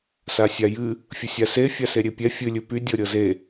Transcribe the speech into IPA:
s a sʲ a j ɨ | fʲ ə sʲ a s e fʲ a s e ɾʲ e pʲ ɛ fʲ ɨ lʲ ɨ p y dʲ ɤ ɾʲ ɤ z e

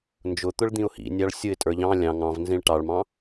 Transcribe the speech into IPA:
n d͡ʒ ʊ t̪ ʊ ɭ d̪ ĩ ʊ̯ h ḭ nʲ ɑ ɭ sʲ ʊ ɪ̯ tʼ ə˞ ʎ ɑ̃ lʲ ɑ̃ ŋ ɑ̃ v n z ĩ ɭ ʈ ɑ ɭ m ɑ̃

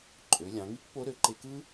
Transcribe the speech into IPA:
ǃʼ ø˩˧ lʲ ɑ̃˩˧ ŋ i˥ k p o˧˥ ɾ ø˩˧ ǃ e˧ k ɯ˥

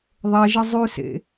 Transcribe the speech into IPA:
ðˤ ɛ ʒ ə zˤ ʉ s ḛ

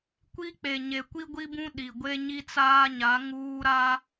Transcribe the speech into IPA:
kʷ i˦ k͡p e˨ ɲ e˨ kʷ i˦ ɡʷ i˦ b ũ˦ ɗ i˨ ɡʷ e˦ ɲ i˦ t͡s aː˦ ɲ a˨˦ ŋ uː˦ ɾ a˦

